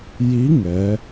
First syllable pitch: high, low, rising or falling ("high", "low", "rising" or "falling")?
rising